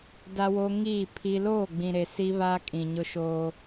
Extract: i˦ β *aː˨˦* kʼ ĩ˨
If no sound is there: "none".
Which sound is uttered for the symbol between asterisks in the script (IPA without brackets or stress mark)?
aː˦